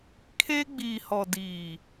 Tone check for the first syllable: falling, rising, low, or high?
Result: high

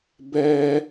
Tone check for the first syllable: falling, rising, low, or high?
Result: high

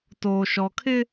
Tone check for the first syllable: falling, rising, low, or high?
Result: low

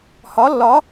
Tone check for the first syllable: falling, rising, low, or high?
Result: rising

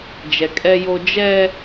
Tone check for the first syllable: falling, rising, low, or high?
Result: low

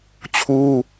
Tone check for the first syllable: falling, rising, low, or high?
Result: high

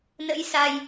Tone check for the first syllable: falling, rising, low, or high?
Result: rising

